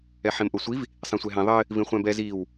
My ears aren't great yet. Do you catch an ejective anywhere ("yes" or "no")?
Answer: no